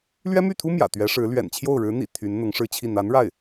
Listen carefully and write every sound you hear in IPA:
l ɥ ɛ˥ m y˥˩ t̪ʰ u˥ m j ä̰˨˩ t̪ ɥ ɛ˧˥ ʂ ɻ̩˧˥ l ɥ ɛ̰˨˩ n t͡ɕʰ j o˥˩ ʊ̯ ɻ ɻ̩˧˥ n̪ ḭ˨˩ t̪ʰ y˧˥ n n̪ ʊ˧˥ ŋ ʂ ɻ̩˥˧ t͡ɕʰ i˥˩ n̪ a˧˥ n ɻ a˥˩ ɪ̯

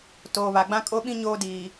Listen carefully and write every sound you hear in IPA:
t oː˨ β a˨ ɡ͡b ã˦ kʼ o˦ ɓ ĩ˦ ɲ oː˦ d iː˨

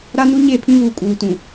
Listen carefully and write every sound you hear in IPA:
ɾ a˦ n u˦ ɲ e˦˨ pʰ ĩ˦ β uː˨ kʼ uː˨ t ũ˨

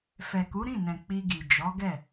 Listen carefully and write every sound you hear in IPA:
f ɛ˨ k u˨˦ ɾ ĩ˦˨ n ɛ̃˨ k͡p i˧ ɡ i˨ d͡ʒ ɔ˨˦ ɡ ɛ˦˨

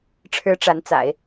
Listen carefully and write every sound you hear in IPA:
ʈ͡ʂʰ ɻ̩˧˥ ʈ͡ʂ a˧˥ n t͡s a̰˨˩˦ ɪ̯

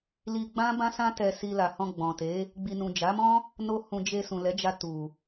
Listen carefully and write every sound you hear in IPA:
l i˧ ɡ͡b ã˦ b ã˦ s ã˦ t ɛ˧ s i˧ l a˨ h ɔ̃˧ ɡ͡b ɔ̃˨ t e˨˦ | ɡ͡b i˨ n ũ˨ d͡ʒ a˨˦ m ɔ̃˦ | n o˦ h ũ˧ d͡ʒ e˧ s ũ˨ l ɛ˨˦ d͡ʒ a˧ t u˨

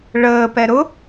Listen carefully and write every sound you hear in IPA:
ɭ əː p ɛ ɾ ʊ

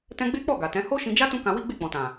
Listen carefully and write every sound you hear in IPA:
t ɛ̃˦ ɡ͡b e˦ k͡p ɔ˦˨ ɡ a˨ t ɛ̃˨˦ h o˦ ʃ ĩ˧ d͡ʒ a˦ t ũ˦ k ã˧ w i˦ ɡ͡b e˦˨ k͡p ɔ̃˨ t ã˨

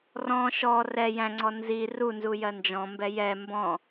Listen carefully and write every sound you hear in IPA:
r ɔ̃ ʃ ɔ r ɛ j æ̃ ŋ͡ǀ ɔ n z i r u n z u j ɜ n d͡ʒ ɔ̃ m b ɛ j ɛ m b ɔ̃

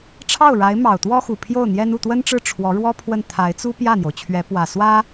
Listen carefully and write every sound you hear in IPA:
ʈ͡ʂʰ ɑ˥˩ ʊ̯ ɻ a˧˥ ɪ̯ m ɑ˨˩ ʊ̯ t̪ w ɔ˥ x u˨˩ pʰ j o˥˩ ʊ̯ n̪ j ɛ˥ n u˥˩ t̪ w ə˥ n ʈ͡ʂ ɻ̩˥˩ ʈ͡ʂʰ w ɔ˧˥ ɻ w ɔ˥ pʰ w ə˥˩ n t̪ʰ a˧˥ ɪ̯ t͡s u˥ p j ä˥˩ n̪ j o˩ ʊ̯ t͡ɕʰ ɥ ɛ˧˥ p w ä˨˩ s w ä˥

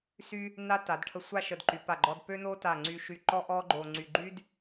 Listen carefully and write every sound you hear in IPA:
s y˥ | n a˥ t a˩˧ d ʈʰ ə˧ sʷ a˥˧ ʃ ə˧˩ d ǃ y˩˧ p a˧˩ ɡ͡ǃ ɔ˧ d p ø˥ n o˥ t a˧˩ ŋ͡ǀ y˧ ʃ y˧ ǃ ɔ˥ ʔ ɔ˥ ɡ͡ǃ o˧ ŋ͡ǀ y˧ ɡ͡ǃ y˥ d

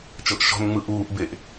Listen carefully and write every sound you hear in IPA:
t͡ʃ ɤ ʔ ʃ ɔ̤ n ŋ͡m ɯ ʔ uː ʔ b e ʔ

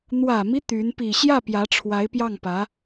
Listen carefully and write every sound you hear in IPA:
n̪ w ä˨˩ m i˦ t̪ y˧˥ n p i˨˩ ɕ j ä˥˩ p j ä˧˥ ʈ͡ʂʰ w a˧˥ ɪ̯ p j ɑ˥˩ ŋ p ä˧˥

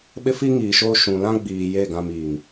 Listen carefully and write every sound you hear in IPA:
ɓ ɪ˦ f i˦ ŋ iː˨ ʃ oː˦ ʃ ũ˨ l ã˦ ɡ͡b iː˨ j e˦˨ ɡ ã˨ m iː˨ ŋ

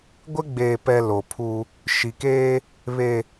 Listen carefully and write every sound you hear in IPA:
ɡʷ ɪ˦ ɡ͡b eː˨ p ɛ˨ l o˨ pʰ u˦ | ʃ i˨ k eː˦ | β e˨

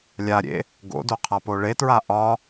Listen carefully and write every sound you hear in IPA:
lʲ a ɾʲ ḛ | ɡ o̰ d o qʰ a p o ɭ e t ɹ a ʔ ɒ

